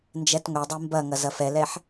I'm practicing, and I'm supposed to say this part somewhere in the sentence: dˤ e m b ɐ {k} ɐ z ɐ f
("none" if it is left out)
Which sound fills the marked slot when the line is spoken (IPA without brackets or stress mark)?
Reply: ŋ